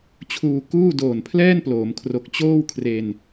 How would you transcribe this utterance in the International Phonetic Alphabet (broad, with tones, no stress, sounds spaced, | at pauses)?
t͡ɕʰ uː˧ k uː˥˩ d oː˨˩ n pʰ l ɛː˥˩ n p l oː˩˦ m kʰ r o˨˩ k̚ t͡ɕ oː˥˩ w kʰ r e˧ n